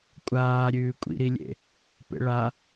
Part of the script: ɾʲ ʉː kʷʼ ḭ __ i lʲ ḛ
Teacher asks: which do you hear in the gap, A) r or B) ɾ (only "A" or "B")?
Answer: B